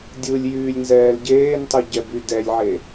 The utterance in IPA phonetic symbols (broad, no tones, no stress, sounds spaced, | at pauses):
dʲ ɯ lʲ j yː lʲ n z ɛː l ɟ eː n tˤ ɯ ɟ ɛ b y d ɛ lʲ ʕ e